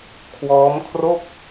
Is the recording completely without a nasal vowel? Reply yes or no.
yes